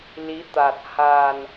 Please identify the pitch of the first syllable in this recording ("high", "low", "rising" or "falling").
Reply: rising